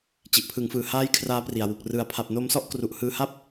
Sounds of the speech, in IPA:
t͡ɕ i˨˩ ʔ pʰ ɯ˩˦ ŋ f ɯː˨˩ h aː˦˥ j kʰ r aː˦˥ p r i˨˩ a̯ w u˨˩ k̚ r ɯ˨˩ a̯ pʰ a˨˩ p̚ n o˧ m s ɔ˥˩ ʔ k r u˨˩ ʔ h ɯː˧ h a˥˩ p̚

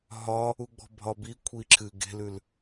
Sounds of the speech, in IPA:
ɦ ɒ | u ɡ͡b ɔ̤ bʱ ɒ b i kʷʰ i ǁʰ ɨ ɡ e̤ l ʉ l

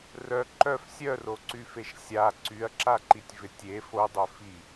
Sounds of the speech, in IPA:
r œ ǃ œ f sʲ œ r o ǀ y f e ʃ sʲ a ǀ y ɐ̯ ǁ a ǃ i tʲ v ɪ tʲ e f o dˤ œ f i

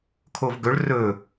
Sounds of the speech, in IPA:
kʰ o v ɡ ɵ ɭ r ɵ

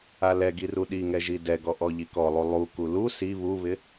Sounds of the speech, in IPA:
a l ɛ ɡ i r u ɗ i ŋ ɛ ʒ i d ɛ ɡ ɔ ʔ ɔ ʎ i k ɔ lˠ u lˠ u k u l u s i β u β ɪ

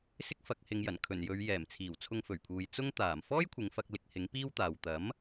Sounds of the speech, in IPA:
s ɪ˥ k̚ f ɐ˨˥ k̚ h ɪ˨˧ ŋ j ɐ˨˩ n kʰ ɵ˨˩ n j ɵ˨˧ ɥ j ɛː˨˩ m t͡sʰ iː˨˩ w t͡sʰ ʊ˧ ŋ f ɵ˨˩ ɥ pʰ uː˨ j t͡s ʊ˥ ŋ t̪ aː˨˩ m f ɔː˥ j kʷʰ ɪ˨˧ ŋ f ɐ˧ k̚ l ɪ˧ k̚ h ɪ˨˥ ŋ p iː˥ w t̪ aː˨ w t̪ ɐ˨˥ m

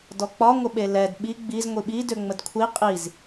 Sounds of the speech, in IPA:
d ɔ k͡p ɒ ŋʷ ə ɓ e l ɛ d ɓ i ɡ͡b i z ŋʷ i ɓ i d ø ŋ͡m ə d kʷʰ i qʼ i z

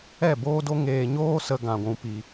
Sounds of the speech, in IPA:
ɛ˦˨ b oː˦ d o˦ ŋ eː˧ ɲ oː˦ s ə˧ ɡ ã˧ ɡʷ ũ˧ p i˨

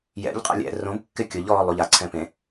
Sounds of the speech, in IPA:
j ɛ̰ ʎ qʼ ɛ̰ lʲ ɛ̰ r õ b kː ɪ kʲ ʊ ʎ ɔː lˠ u ʎ a ǀʰ ɛ̃ p ẽ

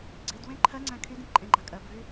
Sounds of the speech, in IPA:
ɡ͡ǀ i d w ẽ ǃʰ ɜ ŋ͡ǀ æ̃ kʰ y d ĩ p ǃʼ ẽ ɡ͡ǃ a kʼ ɜ b v y

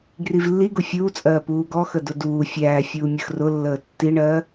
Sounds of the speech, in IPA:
ɡ r i v lː i ɡ ʊ fʲ uː t͡sʼ ɜː p uː ɡ ɔ x ə d ʊ d uː fʲ æː fʲ uː mʲ ə x r ʊ lː əː tː i ɳ ɜː

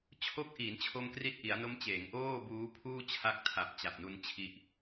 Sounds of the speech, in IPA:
t͡ɕʰ o˦˥ k̚ ʔ iː˩˦ n t͡ɕʰ o˧ m k r i˦˥ t̚ ʔ i˩˦ a̯ n o˦˥ m t͡ɕ eː˩˦ ŋ ʔ oː˥˩ b uː˦˥ pʰ uː˥˩ t͡ɕʰ a˦˥ k̚ tʰ a˨˩ p̚ t͡ɕ a˨˩ p̚ n u˧ n t͡ɕʰ i˦˥ ʔ

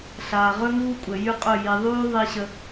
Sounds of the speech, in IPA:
ɬ aː˨ ʁ ɵ˦ ŋ uː˦ kʷʼ ə˨ j y˦ qʼ ɵ˦˨ j i˨ ðˤ yː˦ ðˤ i˦ ɕ ə˦

